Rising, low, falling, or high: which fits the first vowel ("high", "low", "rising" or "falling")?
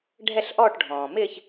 falling